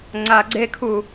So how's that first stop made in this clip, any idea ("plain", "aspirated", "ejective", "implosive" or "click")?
click